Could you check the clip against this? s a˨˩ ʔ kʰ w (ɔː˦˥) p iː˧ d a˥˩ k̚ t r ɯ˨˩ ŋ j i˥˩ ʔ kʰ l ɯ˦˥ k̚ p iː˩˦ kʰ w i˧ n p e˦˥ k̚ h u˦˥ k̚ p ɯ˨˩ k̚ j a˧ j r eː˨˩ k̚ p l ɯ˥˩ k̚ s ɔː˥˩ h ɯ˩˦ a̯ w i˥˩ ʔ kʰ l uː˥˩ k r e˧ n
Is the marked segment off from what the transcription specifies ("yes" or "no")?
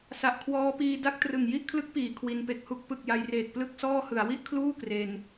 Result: no